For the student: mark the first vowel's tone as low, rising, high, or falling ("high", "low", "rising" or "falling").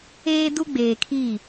high